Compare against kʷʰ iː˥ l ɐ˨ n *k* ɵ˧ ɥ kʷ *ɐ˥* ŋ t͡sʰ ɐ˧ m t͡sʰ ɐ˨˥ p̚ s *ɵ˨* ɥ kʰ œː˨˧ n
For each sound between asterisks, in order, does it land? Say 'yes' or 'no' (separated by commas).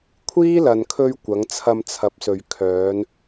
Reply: no, no, yes